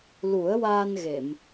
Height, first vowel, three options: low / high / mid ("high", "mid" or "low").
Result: high